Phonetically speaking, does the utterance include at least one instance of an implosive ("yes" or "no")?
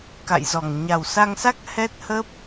no